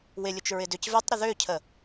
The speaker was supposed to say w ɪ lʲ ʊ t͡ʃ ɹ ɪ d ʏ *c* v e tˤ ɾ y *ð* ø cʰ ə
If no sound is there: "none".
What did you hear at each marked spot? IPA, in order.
c, ð

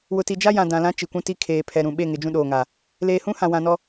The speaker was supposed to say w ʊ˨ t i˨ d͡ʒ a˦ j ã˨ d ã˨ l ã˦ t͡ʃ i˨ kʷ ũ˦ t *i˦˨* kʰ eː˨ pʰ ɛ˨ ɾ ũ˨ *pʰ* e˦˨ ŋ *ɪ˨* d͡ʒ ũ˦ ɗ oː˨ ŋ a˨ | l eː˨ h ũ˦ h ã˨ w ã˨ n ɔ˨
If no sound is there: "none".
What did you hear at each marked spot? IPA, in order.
i˦, ɓ, ɪ˨

